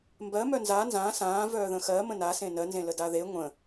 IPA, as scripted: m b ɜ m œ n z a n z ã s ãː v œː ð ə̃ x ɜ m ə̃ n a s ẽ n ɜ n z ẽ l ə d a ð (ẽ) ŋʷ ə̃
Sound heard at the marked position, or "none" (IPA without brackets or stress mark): e